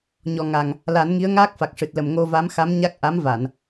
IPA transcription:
ɲ ɔ˨˩ ŋ a˨˩ ŋ | l a˨˩˦ n ŋ i˧˥ ə̯ ŋ aː˦˥ k̚ f a˨˩ k̚ ʂ ɨ˨˩ t̚ l ə˨˩ m ŋ o˧ v a˧˥ m x a˧˥ m ɲ a˦˥ k̚ ʔ a˧˥ m v a˨˩˨ n

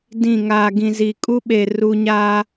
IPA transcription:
d ĩ˦˨ ŋ aː˨ ɡ ĩ˨ z i˨ kʼ u˦ ɓ e˨ r u˨ ɲ aː˨

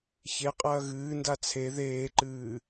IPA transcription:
ç e qʼ ɐː ɣ ɨː n d a t͡sʰ e ð eː ǃ ɨː

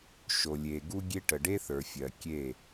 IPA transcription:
ʃ o˨ lʲ e˨ ɡ u˦ ɡʲ e˦ ʈ ə˨ ɖ e˦ θ ə˞˨ fʲ ɜ˨ kʲ e˦˨

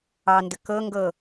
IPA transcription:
ɑ n d ə k ɤ ŋ ɡ ɤ

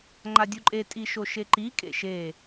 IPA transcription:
ŋ͡ǃ a dʲ u ǃʼ e tʼ i ʃ o ʃ e ǃ i kʼ ḛ ʃ e

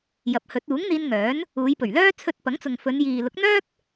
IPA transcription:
j ɐ˨˥ p̚ h ɵ˨˥ t̚ uː˨˥ ŋ n̪ iː˧ n ŋ œː˨˥ n | uː˨˧ j p ɵ˨˩ ɥ l œː˥ t͡sʰ ɵ˧ t̚ p ɐ˨˥ ŋ t͡s ʊ˨ ŋ f ɵ˨˧ n j iː˨ l ʊ˨˥ k̚ n̪ œː˥ k̚

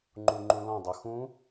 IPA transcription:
ŋ͡ǃ u ŋ͡ǃ ũ l ɔ̃ dˤ o x ũ

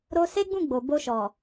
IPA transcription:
ɾ o˦ s e˦ ɡ͡b ũ˦˨ ɡ͡b o˨ b o˧ ʃ ɔ˨

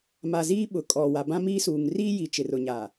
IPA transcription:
m a˨ z iː˦ ɓ ʊ˨ kʼ ɔ˨ w a˨ b ã˦ m iː˦ s uː˨ ŋ r i˦ j i˨ t͡ʃ ɪ˨ r ʊ˨ ɲ a˨

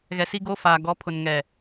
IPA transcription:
ɣ ɛ˨ s i˦ ɡ oː˦ f aː˨ ɡ ɔ˨˦ pʰ ʊ˨ n ŋ ɛ˨

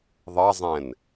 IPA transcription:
ðˤ ɑ zˤ ɛ̃ n

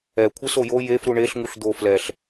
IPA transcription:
ɛ kʷʰ e s o j o j e f ɾ u ɳ e ɬ ŋ u ɬ d̪ o f l ɛ ɬ

